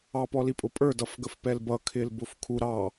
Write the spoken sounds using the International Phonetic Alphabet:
ɑpɔlipʼʊ pʼə˞dʌfɡəfpɛl bʌkʰɪlbʊf kʰu ɾɑ

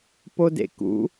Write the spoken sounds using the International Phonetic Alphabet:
podḛkṵ

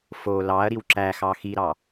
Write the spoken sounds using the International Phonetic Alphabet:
fo lɑɐ̯ ɾiwǁæxɑ xiɾɑ

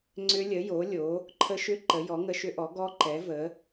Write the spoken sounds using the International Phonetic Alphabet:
ŋ͡ǀʏ˦˥lʲə˨˥ jo˨˥lʲo˨˥ | ǃʰə˦˥ʃʏ˦˥ ǃə˨˥jɔ˨˥ ŋə˦˥ʃʏ˦˥ʔɔ˨˥ ɡɔ˦˥ ǃɛ˨˥və˨˥

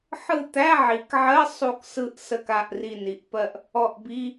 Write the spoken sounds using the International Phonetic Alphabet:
ħɯ˦˨t̪æ˧˥˧ʕi˩˧kʕɜ˧˥˧ sˤu˦˨ksɯ˦˨ʔ sə˦˨ka˦˨ʔ ri˦˨ni˩˧ʔpɜ˦˨ʔ | ɔ˦˨ʔbi˧˥˧

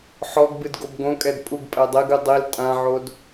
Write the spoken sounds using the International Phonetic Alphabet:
ħɔɡ bɨdɡobɡõkʼɛd pʼuɡpʼɛ dˤeɡɨ dˤil tʼãʕod

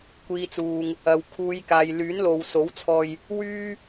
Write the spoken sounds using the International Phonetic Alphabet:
kʷiː˨t͡suː˨ŋ | ɐ˨w kʰuː˨˧j kaː˨jlyː˨˥nlo˨wso˨˥w t͡sʰɔː˧j | wyː˥

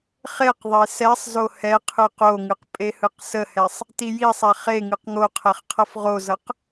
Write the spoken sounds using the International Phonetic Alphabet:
χeqðˤe sɛsˤzo hɛqʰɯ qoŋɯq pʼehɯqsəhɛsˤ | tijisˤɛ χe ŋɯqŋoqʰɛχ qʰʌfʁozʌq

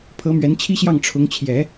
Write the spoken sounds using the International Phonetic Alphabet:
pʰɤ˧˥mɥɛ˧˥nt͡ɕʰi˥ɕjɑ˥˩ŋ ʈ͡ʂʰʊ˧˥ŋt͡ɕʰjɛ˨˩˦

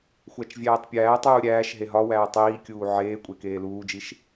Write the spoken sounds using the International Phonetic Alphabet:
xʷæt͡ʃvʲæːtˤpʲæːtˤuː ɾʲæːʃ ɦeɦɒwæː tˤiːkʲuː ʕeːkʷʼe keːluːd͡ʒiʃ

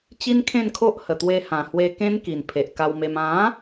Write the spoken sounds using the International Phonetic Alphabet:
t͡ɕi˦nkʰẽ˥˧nkʰo˦ʔ hə˨˩t̪we˧ hã˨˩hwe˧kẽ˦nki˨˩n pʰe˨ʔka˧wme˧m ã˨˦

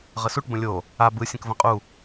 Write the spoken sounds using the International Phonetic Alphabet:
ʁəsuʈ bə̃lʲo | a bɯ sʲə̃kvə̃qʼu

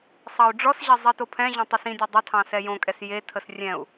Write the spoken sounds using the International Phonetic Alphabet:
sˤɑu̯ɖ͡ʐɔsʑɛ zˤitopʰɛ̃ʑõ tˤʏsĩdʲɔ dˤə tʰɑ̃sɛjõkʼɛs jetʰəs rʲɛ̃u̯

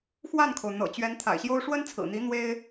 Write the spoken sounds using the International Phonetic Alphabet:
xwa˥˩nkʰo˩ʊ̯ n̪ɤ̰˨˩t͡ɕɥɛ˧˥n t̪ʰa̰˨˩ɪ̯ɕjo˥ʊ̯ ʂwə˥nt͡sʰɹ̩˨˩n̪i˧˥ n̪we˥ɪ̯

